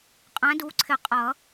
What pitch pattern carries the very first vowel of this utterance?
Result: rising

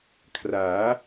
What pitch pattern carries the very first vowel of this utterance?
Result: rising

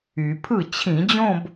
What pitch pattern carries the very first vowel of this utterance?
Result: low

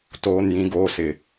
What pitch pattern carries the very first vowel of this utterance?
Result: high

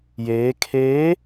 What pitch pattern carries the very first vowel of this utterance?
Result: rising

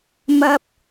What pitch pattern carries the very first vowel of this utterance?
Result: high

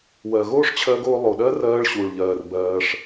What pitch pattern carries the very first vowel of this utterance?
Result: low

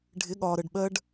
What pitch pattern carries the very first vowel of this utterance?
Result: rising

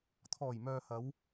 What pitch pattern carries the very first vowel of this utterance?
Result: low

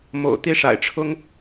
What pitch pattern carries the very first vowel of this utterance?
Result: low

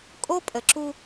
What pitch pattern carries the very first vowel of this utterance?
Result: high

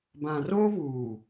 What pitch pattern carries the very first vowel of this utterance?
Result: low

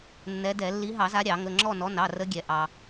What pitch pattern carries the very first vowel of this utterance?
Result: rising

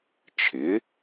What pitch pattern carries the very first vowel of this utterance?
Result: rising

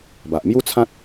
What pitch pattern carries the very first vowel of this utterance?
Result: low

